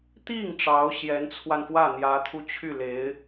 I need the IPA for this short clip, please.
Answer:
t̪ i˥˩ ŋ ʈ͡ʂ ɑ˧˥ ʊ̯ ɕ j ɛ˧˥ n t͡sʰ w a˧ n f w ä˥˩ n̪ j ä˧˥ t̪ʰ u˧ t͡ɕʰ y˥˩ l e˧˥ ɪ̯

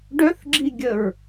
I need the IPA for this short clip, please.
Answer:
ɖ œ θ ɡ͡ǁ i ɡʲ ə ɹ

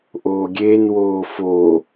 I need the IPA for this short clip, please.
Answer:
ʔ oː ɡʲ eː n w oː f oː

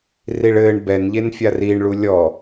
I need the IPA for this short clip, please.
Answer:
r i ɭ ɘː ɳ b ɛ n ʎ e n fʲ a r iː ɳ ɭ u lʲ ɔ

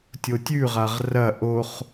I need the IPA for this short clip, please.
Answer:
tʲ o tʲ ʉ ʁ a ʁ r ɐ ʔ o χ

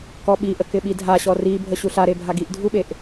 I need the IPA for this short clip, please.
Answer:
k ɔ ɓ i ʔ ə k ɪ ɓ i dʱ a ɕ ɔ r i bʱ ə ɕ u ɬ a ɾ e bʱ a ɡ i ʔ dʱ u ɓ e ʔ

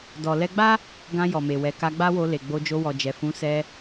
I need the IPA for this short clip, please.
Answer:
d ɔ˨ l ɛ˧ ɡ͡b a˦ | ɡ ã˧ j ɔ˨ m e˨ w ɛ˨ k a˧ ɡ͡b a˦ w o˧ l e˨ ɡ͡b o˧ d͡ʒ o˧ w ɔ˨ d͡ʒ ɛ˨ f ũ˨˦ s ɛ˧

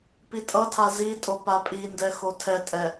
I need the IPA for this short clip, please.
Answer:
p i tʼ ʌ tʰ a z i tʼ o p a pʼ i n d ɛ x o tʰ ɛ tʼ ɛ

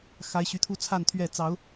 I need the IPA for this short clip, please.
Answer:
x a˨˦ ɪ̯ ɕ y˨˦ t̪ʰ u˦ t͡sʰ a˥˨ n t̪ʰ ɥ ɛ˥˨ t͡s ɑ˨˦ ʊ̯

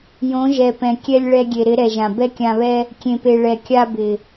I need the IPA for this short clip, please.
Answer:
j õ˨˦ ʒ ɛ˨ p ɛ̃˨ kʲ ɛ˧ lʲ ɭ ɛ˧ ɡʲ e˨ ɾ ɪ˨˦ ɾ ɛ˨ ʒ ã˨ b ɛ˦ kʲ ã˧ β ɛ˦ | kʲ ẽ˨ p e˨ ɭ ɛ˨ kʲ a˧ b ɪ˨

